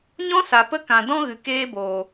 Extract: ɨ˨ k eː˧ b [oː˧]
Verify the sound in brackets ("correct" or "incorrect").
incorrect